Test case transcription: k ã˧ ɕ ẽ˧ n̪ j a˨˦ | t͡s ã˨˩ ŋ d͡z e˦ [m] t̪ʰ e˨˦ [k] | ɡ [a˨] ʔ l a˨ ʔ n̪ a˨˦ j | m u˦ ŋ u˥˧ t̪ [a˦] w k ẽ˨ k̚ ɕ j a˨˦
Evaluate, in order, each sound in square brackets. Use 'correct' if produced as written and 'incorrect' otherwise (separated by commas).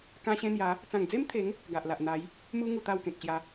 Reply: correct, incorrect, correct, incorrect